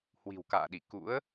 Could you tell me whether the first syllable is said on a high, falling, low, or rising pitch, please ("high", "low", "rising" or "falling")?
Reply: low